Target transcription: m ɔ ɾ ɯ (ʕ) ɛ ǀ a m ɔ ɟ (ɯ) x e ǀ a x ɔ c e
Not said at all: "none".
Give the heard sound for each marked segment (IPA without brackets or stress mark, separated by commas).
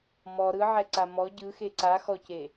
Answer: ʕ, ɯ